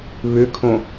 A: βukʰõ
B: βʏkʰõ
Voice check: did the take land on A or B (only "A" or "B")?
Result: B